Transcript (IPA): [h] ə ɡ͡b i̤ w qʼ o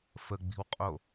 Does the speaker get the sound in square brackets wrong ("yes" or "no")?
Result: yes